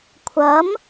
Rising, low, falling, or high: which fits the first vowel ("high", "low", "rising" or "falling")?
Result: rising